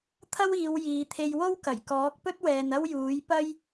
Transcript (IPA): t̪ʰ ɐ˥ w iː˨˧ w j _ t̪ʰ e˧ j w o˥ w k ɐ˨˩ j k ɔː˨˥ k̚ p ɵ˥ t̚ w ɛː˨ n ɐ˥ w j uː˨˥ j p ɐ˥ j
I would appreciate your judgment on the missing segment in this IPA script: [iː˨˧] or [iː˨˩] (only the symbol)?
iː˨˧